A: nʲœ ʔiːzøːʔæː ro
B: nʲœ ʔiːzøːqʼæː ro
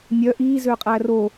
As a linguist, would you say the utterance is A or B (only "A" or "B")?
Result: B